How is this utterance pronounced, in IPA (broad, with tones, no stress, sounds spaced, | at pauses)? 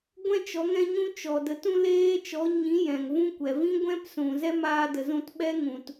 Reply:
ɡʷ ɛ̃˦ t͡ʃ ɔ˨˦ ŋ ɛ̃˦ ɲ ũ˦ t͡ʃ ɔ˨ d ə˨˦ t ũ˦ l eː˦ t͡ʃ ɔ˨˦ ɲ ĩ˨˦ j ɛ̃˨ ŋ v ũ˦ kʷ ɛ˨ v ĩ˦ ɡʷ ɛ̃˦ p s ũ˨ z ɛ˦ m aː˧ d ə˨ z ũ˧ t ɓ ɛ˦ ŋ ũ˨ t